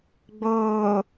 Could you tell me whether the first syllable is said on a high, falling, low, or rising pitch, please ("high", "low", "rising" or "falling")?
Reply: low